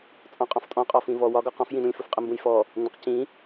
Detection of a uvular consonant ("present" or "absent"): present